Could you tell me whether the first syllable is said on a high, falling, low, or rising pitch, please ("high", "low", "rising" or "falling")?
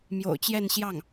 low